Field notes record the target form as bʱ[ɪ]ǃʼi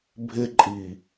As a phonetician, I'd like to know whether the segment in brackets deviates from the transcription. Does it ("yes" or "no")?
no